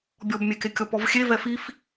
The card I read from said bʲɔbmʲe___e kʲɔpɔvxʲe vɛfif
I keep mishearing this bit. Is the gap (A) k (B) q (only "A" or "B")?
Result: A